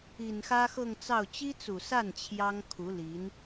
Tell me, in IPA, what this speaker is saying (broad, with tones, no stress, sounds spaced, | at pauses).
i˨˩ n x ä˥ x ɤ˥˧ ŋ t͡s ɑ˥˩ ʊ̯ t͡ɕ i˥ t͡s u˨˩ s a˥˩ n t͡ɕʰ j ɑ˥ ŋ kʰ u˧˥ l i˧˥ n